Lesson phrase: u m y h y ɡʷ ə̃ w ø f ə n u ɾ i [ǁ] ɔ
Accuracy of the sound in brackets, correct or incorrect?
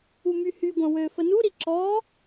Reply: correct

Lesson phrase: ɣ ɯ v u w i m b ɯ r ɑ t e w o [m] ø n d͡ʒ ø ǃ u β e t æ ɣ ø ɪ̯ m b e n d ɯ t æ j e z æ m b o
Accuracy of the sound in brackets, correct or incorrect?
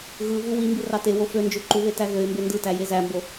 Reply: incorrect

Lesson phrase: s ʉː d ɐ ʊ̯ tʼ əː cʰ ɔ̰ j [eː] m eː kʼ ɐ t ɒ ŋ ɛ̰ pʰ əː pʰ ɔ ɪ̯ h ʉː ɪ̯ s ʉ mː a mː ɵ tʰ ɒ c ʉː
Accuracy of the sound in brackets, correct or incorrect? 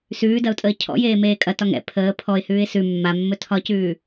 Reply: correct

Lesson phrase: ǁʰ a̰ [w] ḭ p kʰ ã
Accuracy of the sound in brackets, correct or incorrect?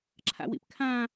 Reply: correct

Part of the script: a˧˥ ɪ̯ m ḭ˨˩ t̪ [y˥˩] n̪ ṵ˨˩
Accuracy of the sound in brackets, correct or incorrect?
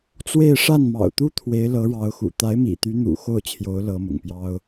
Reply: incorrect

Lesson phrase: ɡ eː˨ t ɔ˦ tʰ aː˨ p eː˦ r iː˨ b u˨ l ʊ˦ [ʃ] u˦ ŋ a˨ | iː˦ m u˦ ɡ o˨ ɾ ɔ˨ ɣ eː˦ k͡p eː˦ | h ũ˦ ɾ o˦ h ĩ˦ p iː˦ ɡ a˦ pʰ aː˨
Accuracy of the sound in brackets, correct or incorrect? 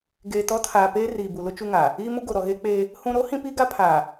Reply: incorrect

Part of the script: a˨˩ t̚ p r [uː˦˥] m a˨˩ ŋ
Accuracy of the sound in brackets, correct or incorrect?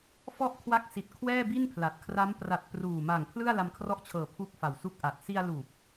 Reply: incorrect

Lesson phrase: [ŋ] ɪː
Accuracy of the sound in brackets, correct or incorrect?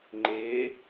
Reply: incorrect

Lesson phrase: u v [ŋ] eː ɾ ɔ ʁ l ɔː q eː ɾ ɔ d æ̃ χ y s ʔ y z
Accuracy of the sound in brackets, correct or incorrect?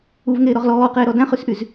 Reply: correct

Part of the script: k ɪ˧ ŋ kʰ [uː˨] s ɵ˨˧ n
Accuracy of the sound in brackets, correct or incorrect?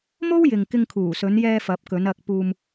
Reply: incorrect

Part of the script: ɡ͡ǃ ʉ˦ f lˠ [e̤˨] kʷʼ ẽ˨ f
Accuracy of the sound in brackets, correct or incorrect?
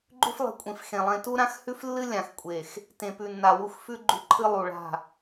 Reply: correct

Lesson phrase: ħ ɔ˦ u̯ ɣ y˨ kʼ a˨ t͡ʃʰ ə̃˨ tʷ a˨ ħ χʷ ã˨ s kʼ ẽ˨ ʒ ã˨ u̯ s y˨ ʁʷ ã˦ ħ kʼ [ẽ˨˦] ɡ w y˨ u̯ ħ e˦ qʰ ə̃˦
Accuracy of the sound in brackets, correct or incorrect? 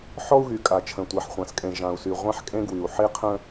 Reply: incorrect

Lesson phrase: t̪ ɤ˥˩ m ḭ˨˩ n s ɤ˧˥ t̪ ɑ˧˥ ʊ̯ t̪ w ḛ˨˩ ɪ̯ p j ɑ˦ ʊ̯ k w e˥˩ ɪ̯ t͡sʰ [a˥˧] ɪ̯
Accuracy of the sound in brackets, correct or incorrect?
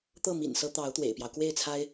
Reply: incorrect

